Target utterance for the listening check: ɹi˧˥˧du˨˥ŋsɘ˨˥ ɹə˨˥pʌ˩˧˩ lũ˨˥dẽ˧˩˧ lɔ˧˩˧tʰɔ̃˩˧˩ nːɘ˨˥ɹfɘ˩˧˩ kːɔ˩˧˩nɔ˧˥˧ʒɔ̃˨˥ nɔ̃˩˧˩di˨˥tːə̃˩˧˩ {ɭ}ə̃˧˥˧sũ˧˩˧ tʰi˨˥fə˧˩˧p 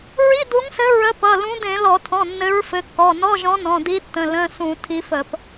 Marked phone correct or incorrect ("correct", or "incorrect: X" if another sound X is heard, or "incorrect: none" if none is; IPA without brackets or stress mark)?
incorrect: l